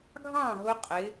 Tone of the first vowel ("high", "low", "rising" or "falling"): falling